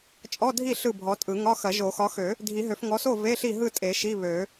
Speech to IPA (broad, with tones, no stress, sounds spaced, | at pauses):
t͡ʃʼ ɔ˧˥˧ dʱ i˥˨ ɬ ɯ˥˨ bʱ ɔ˨˦ tʼ ɯ˨˩˦ ŋ ɒ˧˥˧ x ɐ˨˩˦ ʒ o˨˩˦ x ɒ˨˦ x ø˨˩˦ | dʱ i˨˩˦ ɦ ø˨˩˦ f ŋ ɔ˨˦ s o˥˨ v e˧˥˧ ɬ i˥˨ ɦ ɯ˥˨ tʼ e˨˩˦ ʃ i˧˥˧ β ø˨˩˦